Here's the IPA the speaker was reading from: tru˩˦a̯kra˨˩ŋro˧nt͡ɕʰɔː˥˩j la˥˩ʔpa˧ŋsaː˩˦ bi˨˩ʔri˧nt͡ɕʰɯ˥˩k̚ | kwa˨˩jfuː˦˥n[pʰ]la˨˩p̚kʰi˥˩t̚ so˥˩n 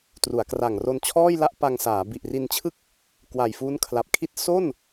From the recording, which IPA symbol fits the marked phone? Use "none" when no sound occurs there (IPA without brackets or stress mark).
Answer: kʰ